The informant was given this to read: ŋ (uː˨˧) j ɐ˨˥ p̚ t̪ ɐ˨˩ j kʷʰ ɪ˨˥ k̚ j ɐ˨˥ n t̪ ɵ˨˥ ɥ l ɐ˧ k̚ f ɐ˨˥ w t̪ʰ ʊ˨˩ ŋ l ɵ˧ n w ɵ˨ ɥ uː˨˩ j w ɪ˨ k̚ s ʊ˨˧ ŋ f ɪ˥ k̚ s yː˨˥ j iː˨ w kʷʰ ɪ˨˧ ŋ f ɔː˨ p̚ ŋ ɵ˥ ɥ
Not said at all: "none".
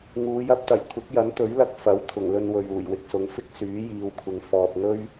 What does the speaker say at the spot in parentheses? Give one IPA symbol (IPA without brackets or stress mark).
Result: uː˨˧